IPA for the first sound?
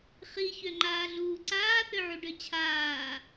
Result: χ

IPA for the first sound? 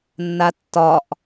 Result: nː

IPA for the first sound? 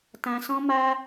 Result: t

